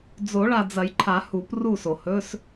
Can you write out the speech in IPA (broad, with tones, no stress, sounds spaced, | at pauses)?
d͡z o˨˩˦ ɭ a˨ d͡z ɐ˨˩˦ j ǃʰ a˨˩˦ h u˨˩˦ p r u˥˩ s o˨ h ɵ˧˥˧ s